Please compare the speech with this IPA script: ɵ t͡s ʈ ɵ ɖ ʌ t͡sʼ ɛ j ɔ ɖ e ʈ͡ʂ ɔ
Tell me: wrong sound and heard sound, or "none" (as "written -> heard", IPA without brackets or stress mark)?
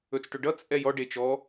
ʈ͡ʂ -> t͡ʃ